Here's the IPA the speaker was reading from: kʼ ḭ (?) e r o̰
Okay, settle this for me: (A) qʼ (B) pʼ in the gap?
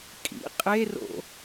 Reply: A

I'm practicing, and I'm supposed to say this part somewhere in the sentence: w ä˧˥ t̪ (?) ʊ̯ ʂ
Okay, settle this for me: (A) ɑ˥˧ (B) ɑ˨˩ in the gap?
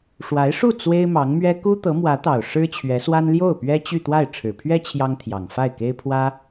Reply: B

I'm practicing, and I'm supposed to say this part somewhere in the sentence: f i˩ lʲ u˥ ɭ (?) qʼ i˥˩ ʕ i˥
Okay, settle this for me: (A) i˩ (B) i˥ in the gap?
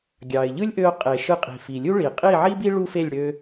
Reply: A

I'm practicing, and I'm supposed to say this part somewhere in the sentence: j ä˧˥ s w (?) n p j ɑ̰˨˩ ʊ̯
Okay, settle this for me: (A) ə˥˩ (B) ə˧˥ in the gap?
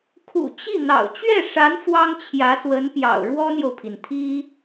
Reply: B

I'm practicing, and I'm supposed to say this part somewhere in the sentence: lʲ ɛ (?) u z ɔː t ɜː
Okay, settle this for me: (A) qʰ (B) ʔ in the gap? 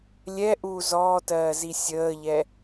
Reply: B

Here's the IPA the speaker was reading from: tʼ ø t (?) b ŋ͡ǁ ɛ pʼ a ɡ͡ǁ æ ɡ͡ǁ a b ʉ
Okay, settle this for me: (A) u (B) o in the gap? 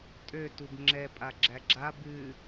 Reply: A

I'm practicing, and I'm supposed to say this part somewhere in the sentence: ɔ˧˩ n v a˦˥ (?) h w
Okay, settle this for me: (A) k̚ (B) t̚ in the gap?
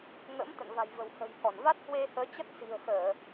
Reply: B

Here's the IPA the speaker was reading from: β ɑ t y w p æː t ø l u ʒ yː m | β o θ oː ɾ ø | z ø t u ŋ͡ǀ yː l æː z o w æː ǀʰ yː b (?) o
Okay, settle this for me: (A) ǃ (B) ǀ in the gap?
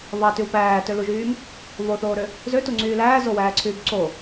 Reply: B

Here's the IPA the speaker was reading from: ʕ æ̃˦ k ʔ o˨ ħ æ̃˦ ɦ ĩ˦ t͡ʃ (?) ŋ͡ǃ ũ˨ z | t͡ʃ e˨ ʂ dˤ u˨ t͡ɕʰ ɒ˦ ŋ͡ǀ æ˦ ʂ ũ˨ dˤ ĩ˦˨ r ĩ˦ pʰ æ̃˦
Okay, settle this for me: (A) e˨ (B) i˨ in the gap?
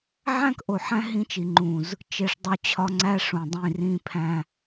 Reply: B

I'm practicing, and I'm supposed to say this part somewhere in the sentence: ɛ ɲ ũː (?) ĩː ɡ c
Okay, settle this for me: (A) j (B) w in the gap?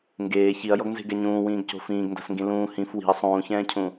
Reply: B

